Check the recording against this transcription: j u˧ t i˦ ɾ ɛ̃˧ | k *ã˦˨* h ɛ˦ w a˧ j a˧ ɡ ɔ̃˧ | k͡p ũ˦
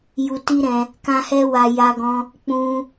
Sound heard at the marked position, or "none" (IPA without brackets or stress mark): ã˦